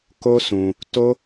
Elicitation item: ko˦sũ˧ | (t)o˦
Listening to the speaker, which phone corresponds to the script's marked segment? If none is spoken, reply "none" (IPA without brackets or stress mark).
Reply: t